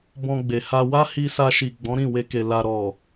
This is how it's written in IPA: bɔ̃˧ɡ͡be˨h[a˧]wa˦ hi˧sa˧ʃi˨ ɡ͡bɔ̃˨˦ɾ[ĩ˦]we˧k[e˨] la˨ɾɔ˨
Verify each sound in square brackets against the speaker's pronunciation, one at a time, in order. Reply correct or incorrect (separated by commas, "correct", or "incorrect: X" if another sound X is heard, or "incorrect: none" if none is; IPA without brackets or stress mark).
correct, incorrect: ĩ˦˨, correct